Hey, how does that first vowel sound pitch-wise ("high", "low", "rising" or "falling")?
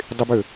high